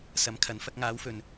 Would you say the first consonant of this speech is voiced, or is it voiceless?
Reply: voiceless